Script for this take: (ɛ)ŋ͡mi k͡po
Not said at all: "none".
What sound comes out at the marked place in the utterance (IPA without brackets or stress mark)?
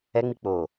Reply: ɛ